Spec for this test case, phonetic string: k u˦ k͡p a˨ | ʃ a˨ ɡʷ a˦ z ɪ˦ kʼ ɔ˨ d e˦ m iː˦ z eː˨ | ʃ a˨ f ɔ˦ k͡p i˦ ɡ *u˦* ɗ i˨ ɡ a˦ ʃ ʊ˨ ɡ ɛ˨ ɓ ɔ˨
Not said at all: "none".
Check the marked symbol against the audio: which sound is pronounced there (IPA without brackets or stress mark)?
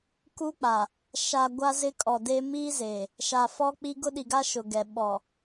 ʊ˦